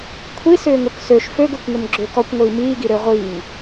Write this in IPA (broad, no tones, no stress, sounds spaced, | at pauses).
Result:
kʷʰ i s ʏː ŋ ɵ k s ø ʃ f ø ɡ ø kʷ ŋ ɵ m ɡ͡ǁ ʏː k ɔ kʷ ŋʷ iː m iː ɡ i ɾ ø ʁʷ iː ŋ